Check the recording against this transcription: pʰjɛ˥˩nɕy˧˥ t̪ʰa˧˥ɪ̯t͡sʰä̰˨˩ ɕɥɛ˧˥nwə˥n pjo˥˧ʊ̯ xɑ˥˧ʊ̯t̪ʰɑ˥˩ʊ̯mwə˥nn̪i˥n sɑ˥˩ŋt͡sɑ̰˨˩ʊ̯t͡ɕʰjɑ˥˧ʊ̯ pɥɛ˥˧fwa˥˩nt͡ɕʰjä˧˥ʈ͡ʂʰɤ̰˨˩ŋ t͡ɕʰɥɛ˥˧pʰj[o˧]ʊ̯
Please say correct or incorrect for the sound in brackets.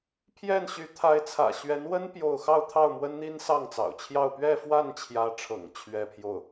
incorrect: o˥˩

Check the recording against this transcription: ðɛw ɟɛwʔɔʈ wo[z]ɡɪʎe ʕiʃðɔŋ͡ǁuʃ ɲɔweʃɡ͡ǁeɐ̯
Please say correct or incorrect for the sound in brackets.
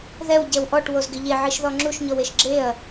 correct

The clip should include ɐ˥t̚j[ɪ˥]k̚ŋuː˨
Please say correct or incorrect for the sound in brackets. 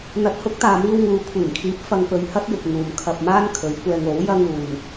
incorrect: ɪ˨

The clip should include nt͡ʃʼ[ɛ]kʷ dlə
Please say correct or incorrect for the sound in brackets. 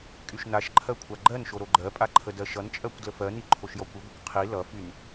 incorrect: ɜ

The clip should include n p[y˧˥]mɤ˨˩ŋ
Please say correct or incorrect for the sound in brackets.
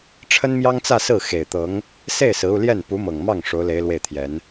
incorrect: u˧˥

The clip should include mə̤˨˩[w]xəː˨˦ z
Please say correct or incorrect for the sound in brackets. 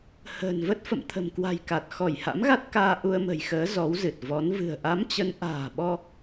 incorrect: j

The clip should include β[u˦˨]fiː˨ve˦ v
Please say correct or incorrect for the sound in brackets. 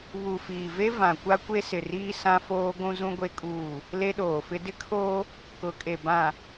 incorrect: u˨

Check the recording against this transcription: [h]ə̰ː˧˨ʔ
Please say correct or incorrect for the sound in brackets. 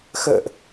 incorrect: x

